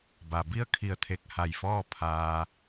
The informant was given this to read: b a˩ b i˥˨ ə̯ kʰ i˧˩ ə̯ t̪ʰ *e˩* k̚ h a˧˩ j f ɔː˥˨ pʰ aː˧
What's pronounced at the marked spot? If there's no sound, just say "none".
e˧˩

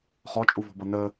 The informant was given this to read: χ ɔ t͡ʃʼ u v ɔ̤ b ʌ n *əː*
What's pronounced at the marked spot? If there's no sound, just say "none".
əː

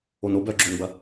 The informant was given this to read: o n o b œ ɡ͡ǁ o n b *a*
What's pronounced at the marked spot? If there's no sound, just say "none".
ɐ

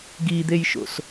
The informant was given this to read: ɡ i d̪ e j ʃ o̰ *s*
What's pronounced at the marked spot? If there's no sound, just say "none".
s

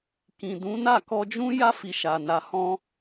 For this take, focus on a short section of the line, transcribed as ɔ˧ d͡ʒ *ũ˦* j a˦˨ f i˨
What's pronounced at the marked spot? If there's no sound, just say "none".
ũ˦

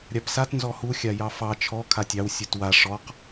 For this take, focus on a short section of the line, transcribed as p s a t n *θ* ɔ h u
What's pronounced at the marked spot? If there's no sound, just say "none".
z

